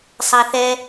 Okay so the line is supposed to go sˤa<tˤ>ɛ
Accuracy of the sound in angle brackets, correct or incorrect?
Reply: incorrect